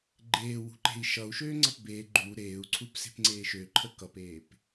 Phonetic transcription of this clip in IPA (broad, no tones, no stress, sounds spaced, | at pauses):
ɡ͡ǃ eː w ṳ ǃ e̤ i̯ ʃ ʌ u̯ ʃ øː ŋ͡ǀ ʌ p b e ɡ͡ǃ u ɾ eː u̯ ǀʰ u p s e̤ p ŋ͡ǀ eː ʃ ø ǃʰ ə k ʌ p eː p